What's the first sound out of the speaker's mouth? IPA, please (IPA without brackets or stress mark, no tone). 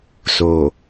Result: s